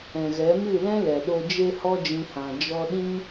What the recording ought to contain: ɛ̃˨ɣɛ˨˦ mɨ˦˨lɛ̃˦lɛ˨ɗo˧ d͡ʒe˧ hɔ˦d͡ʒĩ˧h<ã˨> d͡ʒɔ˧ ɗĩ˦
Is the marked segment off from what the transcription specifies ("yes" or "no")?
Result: no